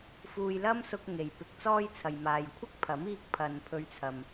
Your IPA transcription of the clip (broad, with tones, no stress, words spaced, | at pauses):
fuː˧jlɐ˥msʊ˧k̚ ŋe˨jpɪ˧k̚t͡sɔː˥jt͡sʰɐ˨j maː˨jkʷʰɪ˥k̚pʰɐ˨˥m iː˧k̚pʰɐ˨n pʰɵ˧ɥt͡sʰɐ˨m